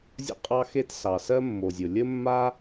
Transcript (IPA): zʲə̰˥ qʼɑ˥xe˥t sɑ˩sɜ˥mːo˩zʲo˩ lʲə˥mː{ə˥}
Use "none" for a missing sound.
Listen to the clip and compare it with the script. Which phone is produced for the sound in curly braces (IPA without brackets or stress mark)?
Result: a˥